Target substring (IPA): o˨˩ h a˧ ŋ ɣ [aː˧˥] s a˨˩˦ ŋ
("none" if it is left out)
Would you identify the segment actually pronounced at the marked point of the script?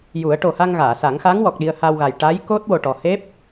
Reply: aː˨˩˨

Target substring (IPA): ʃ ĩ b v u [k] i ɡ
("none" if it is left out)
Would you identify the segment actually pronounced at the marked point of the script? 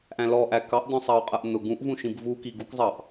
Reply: k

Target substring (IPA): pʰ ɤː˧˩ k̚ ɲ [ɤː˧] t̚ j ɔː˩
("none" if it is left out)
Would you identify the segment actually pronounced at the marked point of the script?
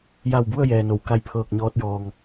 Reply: ɔː˧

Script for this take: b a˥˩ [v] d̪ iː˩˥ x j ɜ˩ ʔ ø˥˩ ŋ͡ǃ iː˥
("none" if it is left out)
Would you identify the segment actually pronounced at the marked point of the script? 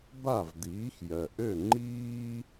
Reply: v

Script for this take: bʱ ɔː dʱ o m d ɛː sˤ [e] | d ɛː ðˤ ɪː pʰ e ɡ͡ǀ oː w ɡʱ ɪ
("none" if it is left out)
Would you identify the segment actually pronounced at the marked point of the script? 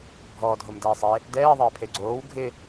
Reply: e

